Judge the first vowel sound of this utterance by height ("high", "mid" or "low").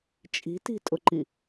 high